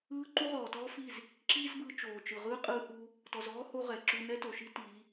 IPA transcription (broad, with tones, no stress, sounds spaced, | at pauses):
ɯː˦ ǃ u˦ ʁ ɔː˨ t ɔː˦ f i˦˨ z | ǁ iː˦ z b ɯː˧ t͡ʃ oː˨ t͡ʃ ɯ˨ ʁ ɯː˦ qʼ ɯː˧ h uː˧ | t ɔ˨ z ɔː˦ h o˦ ʁ ɛ˨ ǁ u˧ n ɛ˦ t o˨ ʃ i˦ t iː˨˦